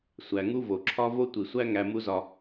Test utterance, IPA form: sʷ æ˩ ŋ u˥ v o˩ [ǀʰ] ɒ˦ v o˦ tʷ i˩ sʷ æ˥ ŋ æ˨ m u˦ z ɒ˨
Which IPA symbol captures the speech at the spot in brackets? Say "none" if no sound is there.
ǁʰ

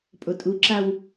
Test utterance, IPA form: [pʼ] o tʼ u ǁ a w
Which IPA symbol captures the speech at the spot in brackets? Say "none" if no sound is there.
pʼ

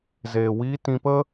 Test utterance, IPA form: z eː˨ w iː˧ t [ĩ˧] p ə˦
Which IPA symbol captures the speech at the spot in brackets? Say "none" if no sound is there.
ĩ˧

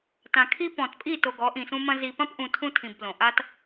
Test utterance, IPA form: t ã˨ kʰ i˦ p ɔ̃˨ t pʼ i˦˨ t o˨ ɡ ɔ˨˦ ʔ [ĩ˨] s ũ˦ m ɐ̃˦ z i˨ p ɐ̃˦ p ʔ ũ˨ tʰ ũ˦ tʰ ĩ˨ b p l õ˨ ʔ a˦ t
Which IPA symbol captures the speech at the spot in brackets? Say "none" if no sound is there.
ĩ˨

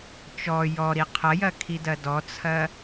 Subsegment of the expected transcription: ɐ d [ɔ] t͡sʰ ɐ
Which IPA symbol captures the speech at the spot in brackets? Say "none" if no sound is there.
ɔ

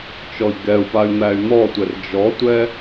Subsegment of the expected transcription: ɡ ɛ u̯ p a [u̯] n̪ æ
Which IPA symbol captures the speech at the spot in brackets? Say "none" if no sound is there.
y̯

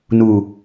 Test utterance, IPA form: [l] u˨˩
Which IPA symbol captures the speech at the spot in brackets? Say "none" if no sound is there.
n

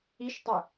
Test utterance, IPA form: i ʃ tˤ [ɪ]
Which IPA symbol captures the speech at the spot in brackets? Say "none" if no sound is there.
ɪ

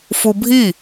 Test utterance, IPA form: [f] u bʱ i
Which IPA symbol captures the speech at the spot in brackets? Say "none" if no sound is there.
f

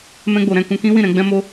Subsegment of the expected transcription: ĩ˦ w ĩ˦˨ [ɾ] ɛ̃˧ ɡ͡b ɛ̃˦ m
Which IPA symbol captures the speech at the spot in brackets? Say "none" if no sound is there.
ɾ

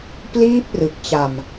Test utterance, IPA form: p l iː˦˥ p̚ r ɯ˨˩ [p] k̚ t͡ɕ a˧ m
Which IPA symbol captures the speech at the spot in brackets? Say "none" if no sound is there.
none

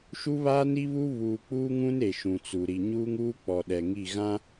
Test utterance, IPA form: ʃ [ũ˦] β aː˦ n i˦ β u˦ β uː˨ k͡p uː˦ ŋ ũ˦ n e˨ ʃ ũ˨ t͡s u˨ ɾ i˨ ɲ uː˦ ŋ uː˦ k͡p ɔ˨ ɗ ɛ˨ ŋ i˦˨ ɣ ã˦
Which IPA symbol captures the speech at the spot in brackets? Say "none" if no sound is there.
u˦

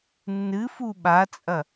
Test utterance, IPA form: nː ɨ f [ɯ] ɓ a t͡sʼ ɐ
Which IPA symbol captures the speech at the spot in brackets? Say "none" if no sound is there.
u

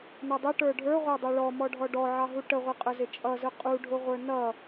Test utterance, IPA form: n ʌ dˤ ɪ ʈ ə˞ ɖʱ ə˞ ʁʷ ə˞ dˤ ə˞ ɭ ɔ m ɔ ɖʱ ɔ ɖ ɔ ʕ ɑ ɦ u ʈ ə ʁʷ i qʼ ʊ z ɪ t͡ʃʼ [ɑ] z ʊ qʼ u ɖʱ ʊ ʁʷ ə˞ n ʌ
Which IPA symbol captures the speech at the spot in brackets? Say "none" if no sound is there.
ʌ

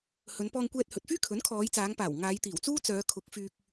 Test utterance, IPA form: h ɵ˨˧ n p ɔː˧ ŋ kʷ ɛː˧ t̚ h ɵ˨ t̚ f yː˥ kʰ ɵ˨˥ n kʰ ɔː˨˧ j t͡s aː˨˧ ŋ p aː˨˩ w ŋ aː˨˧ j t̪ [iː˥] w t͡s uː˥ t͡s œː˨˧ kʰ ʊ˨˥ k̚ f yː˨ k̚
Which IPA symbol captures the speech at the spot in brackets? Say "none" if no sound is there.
iː˨˩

